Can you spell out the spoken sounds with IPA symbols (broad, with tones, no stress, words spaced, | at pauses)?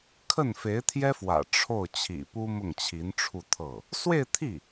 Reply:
kʰə˥˩n fe˧˥ɪ̯t̪ʰjɛ˥fwä̰˨˩ ʈ͡ʂʰo˥˩ʊ̯ t͡ɕʰḭ˨˩pu˥ mʊ˥˩ŋt͡ɕʰi˧˥nʈ͡ʂʰu˥˧ t̪ʰɤ˥˩ | swe˥˧ɪ̯t̪ʰi˥˩